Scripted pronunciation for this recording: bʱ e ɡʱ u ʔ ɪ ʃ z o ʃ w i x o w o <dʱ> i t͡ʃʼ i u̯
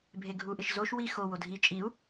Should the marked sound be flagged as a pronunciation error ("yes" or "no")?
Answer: no